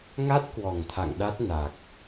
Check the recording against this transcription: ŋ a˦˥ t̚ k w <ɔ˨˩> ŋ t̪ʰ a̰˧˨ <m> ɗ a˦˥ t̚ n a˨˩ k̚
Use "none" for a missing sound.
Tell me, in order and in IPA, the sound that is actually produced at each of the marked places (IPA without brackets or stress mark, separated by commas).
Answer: ɔ˨˩, ŋ